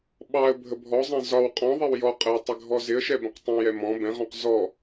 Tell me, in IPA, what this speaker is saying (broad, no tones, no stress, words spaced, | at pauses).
ɓɑə̯ bʱəbʱɔzˤɛ̃ zɒw qʼɔ̃ðˤɛw jɔqʼəw tˤɪɡʱɔzɪə̯ʃɛ bə̃qtˤə̃jɛ mɔ̃ bɛ̃ʁɔ̃q zɔ